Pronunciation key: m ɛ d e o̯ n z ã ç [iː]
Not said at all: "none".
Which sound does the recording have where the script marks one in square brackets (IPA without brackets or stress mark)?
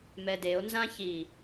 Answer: iː